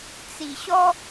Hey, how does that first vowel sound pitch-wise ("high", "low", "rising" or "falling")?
low